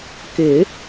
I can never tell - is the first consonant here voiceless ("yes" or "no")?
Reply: yes